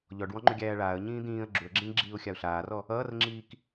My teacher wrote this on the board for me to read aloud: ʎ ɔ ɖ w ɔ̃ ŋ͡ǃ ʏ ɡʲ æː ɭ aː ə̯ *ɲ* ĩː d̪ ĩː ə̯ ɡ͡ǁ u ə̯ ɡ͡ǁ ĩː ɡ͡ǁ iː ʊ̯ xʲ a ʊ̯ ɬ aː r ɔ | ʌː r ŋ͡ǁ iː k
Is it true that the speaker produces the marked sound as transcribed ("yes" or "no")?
yes